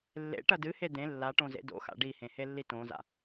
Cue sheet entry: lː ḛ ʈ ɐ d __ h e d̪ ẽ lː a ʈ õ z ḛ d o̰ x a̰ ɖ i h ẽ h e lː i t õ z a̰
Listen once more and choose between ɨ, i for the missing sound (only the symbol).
ɨ